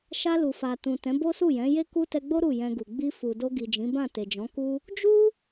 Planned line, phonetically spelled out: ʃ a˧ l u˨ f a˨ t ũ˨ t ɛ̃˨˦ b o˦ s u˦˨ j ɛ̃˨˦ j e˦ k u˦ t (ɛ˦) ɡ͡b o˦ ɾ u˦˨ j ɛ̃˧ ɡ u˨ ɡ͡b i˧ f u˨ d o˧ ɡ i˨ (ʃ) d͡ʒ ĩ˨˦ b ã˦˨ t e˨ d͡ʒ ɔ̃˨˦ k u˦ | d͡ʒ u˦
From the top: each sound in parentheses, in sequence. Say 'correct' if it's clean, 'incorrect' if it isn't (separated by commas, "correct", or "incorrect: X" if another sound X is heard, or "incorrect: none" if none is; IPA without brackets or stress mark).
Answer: incorrect: ɛ˧, incorrect: none